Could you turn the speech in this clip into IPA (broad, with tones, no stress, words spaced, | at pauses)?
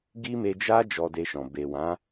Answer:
ɡi˦me˧d͡ʒa˦ d͡ʒɔ˧de˧ʃɔ̃˨ be˨wã˨˦